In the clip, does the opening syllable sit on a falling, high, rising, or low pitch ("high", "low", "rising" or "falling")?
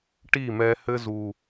falling